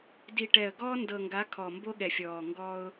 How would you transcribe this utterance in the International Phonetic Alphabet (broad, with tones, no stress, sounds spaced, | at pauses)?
d i˨ ʈ ɛ˨ ə̯ ɡ ɔː˦ n d ɤ˨ ŋ ɡ a˨˦ kʰ ɔ˨ m b o˦ ɠ ɛ˨ fʲ ɔː˨ ŋ ɡ ɔ˦ ʊ̯